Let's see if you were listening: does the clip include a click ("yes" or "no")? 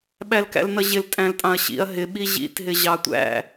no